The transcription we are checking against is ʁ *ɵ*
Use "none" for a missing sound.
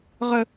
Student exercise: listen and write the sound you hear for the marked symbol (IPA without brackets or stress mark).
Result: ə